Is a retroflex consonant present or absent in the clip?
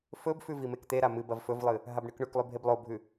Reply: present